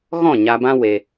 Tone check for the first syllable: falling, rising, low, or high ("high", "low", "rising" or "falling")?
falling